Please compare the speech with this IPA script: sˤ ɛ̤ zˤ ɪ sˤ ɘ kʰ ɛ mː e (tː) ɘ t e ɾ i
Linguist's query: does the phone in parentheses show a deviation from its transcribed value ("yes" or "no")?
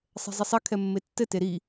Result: no